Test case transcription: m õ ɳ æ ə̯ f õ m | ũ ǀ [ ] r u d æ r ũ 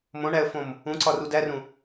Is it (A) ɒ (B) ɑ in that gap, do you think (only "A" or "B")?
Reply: A